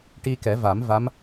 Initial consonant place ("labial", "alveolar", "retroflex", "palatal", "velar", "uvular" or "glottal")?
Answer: retroflex